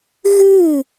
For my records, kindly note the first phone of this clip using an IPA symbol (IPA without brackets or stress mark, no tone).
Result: ɣ